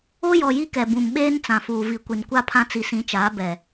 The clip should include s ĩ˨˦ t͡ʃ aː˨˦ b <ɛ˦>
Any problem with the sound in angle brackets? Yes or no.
yes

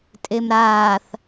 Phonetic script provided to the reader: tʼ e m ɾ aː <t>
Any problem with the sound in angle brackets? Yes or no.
yes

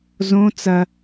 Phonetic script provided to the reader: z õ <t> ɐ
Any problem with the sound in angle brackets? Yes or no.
yes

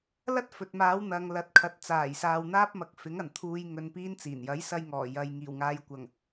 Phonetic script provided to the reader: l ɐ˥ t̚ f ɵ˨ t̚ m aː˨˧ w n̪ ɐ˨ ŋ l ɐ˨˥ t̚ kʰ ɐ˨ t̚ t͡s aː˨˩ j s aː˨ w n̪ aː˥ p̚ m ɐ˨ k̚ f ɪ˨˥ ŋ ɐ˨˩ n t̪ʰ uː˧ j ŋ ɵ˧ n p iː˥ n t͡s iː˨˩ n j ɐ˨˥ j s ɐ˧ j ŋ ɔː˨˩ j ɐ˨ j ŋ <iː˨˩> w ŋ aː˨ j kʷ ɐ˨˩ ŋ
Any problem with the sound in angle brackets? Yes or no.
no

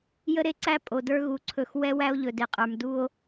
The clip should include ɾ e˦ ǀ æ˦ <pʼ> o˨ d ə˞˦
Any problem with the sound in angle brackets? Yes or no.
no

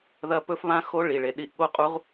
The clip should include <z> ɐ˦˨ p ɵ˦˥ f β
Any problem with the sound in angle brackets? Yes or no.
yes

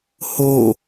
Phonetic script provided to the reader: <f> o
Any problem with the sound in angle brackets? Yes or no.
yes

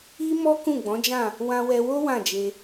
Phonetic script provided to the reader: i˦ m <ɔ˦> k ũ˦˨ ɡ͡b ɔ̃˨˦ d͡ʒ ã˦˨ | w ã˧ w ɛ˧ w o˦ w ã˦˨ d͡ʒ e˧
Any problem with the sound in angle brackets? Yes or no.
no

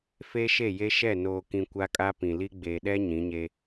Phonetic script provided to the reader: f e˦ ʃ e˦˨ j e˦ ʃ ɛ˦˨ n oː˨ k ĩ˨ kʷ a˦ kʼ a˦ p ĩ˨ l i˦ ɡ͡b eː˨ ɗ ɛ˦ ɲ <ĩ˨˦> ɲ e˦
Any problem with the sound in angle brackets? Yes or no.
no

